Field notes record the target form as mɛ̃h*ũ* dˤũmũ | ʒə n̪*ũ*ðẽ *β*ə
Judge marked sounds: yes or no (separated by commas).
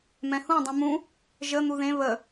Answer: yes, no, yes